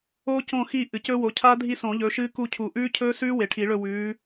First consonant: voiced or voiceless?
voiceless